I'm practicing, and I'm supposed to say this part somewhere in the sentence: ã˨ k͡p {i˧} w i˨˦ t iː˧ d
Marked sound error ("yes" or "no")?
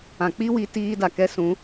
yes